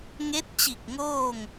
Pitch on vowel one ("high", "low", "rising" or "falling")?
rising